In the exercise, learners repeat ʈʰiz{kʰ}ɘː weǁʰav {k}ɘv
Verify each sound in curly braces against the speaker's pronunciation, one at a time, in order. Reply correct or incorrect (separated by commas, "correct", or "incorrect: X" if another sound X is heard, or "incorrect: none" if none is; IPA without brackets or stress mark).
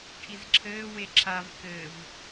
incorrect: ǁʰ, correct